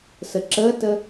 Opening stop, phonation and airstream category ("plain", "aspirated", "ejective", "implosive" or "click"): click